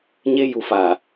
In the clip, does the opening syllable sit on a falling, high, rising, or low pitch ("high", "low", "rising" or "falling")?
high